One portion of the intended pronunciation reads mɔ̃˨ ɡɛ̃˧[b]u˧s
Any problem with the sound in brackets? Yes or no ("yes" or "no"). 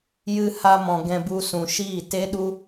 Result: no